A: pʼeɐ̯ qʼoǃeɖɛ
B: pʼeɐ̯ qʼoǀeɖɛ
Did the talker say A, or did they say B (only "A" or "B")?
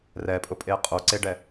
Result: B